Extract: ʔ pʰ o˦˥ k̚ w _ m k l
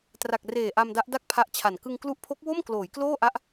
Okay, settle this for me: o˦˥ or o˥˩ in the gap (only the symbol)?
o˥˩